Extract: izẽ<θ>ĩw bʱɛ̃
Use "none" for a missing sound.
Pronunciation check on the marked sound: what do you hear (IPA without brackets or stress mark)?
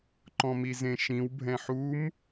ʃ